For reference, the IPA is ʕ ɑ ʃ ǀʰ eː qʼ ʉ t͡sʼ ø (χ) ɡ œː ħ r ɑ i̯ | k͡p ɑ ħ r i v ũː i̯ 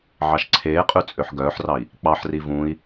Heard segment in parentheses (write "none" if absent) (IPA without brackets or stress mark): ħ